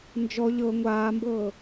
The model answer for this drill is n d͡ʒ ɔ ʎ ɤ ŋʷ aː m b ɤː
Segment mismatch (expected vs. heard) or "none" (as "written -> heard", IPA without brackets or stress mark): none